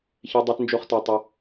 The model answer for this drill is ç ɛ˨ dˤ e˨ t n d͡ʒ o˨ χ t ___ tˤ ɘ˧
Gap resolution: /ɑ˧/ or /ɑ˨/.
ɑ˨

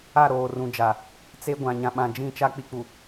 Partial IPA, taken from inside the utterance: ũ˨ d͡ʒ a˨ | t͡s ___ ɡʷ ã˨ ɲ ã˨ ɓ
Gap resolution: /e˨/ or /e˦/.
e˦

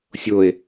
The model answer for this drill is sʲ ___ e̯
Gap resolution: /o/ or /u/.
o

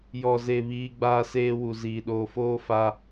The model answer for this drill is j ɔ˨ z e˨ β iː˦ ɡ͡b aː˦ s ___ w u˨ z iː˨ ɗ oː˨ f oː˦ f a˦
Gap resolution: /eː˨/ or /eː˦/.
eː˦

